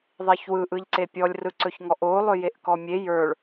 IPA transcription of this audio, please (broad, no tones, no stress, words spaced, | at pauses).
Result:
ðˤiçwɯ ʔɯʎǀepʲɔlʲ rɯǀɵçŋɔʔo lˠɵjeʔkɔmʲe jə˞ɭ